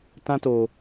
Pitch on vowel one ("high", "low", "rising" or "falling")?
high